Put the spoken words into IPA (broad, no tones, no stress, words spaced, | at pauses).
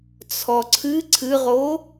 t͡sʰɔǀʰɨ ǀʰɨʁo